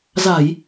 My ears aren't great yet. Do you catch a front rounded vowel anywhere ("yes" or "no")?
no